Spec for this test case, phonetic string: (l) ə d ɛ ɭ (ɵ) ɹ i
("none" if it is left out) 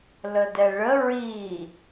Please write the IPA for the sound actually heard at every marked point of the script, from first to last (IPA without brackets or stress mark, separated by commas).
l, ə